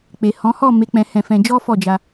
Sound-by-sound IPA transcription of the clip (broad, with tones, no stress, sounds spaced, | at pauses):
k͡p e˨ h ɔ̃˨˦ h ɔ˦˨ m e˨˦ k͡p ɛ̃˧ h ɛ̃˧ f ɛ̃˧ d͡ʒ ɔ˦ f ɔ˦˨ d͡ʒ a˧